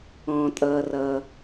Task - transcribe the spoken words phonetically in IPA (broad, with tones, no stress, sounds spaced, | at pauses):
ɔ̃ː˩ tʼ ʌː˩ r ʌː˩